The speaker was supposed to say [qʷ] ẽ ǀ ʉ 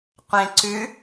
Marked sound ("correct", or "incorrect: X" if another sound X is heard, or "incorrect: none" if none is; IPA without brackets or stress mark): correct